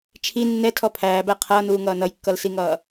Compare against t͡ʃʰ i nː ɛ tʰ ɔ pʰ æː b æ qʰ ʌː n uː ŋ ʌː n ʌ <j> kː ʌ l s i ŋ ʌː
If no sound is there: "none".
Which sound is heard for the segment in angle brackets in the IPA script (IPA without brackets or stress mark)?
j